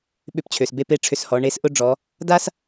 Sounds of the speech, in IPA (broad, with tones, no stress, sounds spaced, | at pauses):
ɓ ʏ˧ p t͡ɕʰ ø˩ s b e˧ p e˧˥ ʈ͡ʂʰ ʏ˧ s h ɔ˩˧ ɳ e˧˥ s ʔ ʊ˥ ɖ͡ʐ ɔ˩˧ | d a˥ s